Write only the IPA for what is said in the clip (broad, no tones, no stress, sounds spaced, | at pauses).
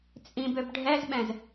t͡sʼ ĩ b ø b ɖʱ ɛ z ɓ ɛ̃ z